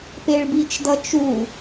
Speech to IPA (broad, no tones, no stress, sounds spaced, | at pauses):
p e ɭ b i t͡ʃ d ʌ t͡ʃ u